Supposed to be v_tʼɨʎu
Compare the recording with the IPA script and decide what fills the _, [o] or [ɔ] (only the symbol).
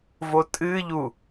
o